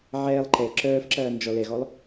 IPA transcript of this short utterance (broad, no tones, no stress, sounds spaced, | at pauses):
ʕ ɛː lˠ ǃ ɛ ǁ œː f ǁ ɐː n d͡ʒ ɔ l ɛ ɣ ɔ lˠ